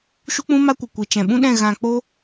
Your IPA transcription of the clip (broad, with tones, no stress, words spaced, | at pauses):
ʃu˦k͡pũ˦ma˦kʷɨ˨ kʷi˨ t͡ʃɛ̃˨ɓũ˦ɗɛ̃˦˨ ɣã˧k͡po˦